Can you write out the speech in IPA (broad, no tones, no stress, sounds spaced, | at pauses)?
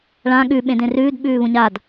ɭ ã ɠ ʉ ɓ ẽ d ẽ r ʉː d ɓ ʉː β ũ ɲ a d